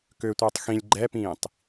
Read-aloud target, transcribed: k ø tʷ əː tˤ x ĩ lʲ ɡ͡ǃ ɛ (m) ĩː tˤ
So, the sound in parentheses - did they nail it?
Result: no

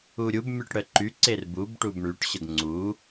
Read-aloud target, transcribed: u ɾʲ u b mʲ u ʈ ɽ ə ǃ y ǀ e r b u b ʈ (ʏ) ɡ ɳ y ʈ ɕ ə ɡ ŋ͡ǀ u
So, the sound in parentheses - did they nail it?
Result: no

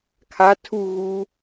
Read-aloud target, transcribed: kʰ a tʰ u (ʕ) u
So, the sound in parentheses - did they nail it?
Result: no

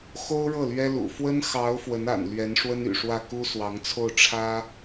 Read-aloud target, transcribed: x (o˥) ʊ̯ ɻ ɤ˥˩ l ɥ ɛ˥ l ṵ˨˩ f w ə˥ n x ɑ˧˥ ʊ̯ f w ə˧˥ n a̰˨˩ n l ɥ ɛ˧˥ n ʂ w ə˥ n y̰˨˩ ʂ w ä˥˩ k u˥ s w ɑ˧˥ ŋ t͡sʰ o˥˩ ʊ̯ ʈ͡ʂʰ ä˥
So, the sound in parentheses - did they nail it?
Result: yes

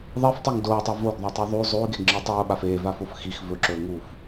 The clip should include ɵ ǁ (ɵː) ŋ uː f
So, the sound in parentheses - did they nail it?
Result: yes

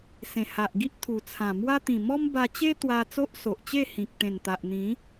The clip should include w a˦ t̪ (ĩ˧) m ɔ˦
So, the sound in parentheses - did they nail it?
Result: no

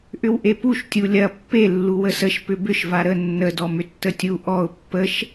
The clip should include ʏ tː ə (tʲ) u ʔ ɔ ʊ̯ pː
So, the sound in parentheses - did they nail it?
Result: yes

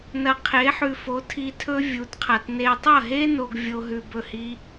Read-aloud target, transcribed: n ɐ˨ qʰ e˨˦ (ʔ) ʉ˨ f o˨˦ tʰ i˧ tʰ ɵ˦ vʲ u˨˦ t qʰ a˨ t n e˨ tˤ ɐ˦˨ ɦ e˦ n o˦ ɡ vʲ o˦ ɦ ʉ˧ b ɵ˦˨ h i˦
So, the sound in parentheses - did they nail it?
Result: no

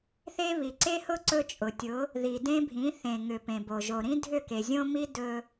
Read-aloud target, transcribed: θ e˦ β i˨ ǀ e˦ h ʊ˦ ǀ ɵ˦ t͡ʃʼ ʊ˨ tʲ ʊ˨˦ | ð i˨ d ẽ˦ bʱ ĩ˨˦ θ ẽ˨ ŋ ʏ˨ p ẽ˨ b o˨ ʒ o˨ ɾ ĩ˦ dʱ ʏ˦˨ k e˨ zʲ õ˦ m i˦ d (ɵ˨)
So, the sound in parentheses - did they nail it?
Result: no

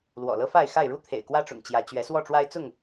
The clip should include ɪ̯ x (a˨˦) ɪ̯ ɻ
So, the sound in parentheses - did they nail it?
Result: no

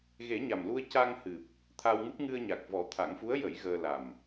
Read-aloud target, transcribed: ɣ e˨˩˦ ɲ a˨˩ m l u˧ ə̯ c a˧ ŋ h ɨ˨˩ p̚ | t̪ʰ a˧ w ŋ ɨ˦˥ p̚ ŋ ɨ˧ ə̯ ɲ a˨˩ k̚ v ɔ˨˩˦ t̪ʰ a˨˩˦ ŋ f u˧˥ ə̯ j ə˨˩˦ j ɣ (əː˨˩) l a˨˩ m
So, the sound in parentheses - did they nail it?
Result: no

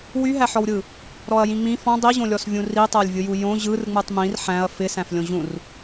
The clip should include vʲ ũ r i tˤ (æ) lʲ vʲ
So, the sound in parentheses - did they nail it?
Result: yes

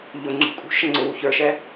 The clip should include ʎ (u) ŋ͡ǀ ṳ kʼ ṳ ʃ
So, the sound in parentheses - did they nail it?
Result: no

